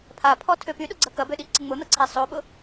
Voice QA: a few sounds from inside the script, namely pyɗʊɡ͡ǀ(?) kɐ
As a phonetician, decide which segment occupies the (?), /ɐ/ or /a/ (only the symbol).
ɐ